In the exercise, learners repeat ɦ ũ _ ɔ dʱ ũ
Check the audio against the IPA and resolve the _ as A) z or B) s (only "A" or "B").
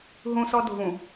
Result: B